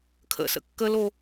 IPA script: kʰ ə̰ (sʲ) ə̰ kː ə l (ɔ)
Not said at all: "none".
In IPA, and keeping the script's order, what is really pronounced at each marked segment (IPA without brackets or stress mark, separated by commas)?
s, o